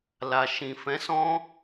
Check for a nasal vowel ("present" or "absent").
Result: present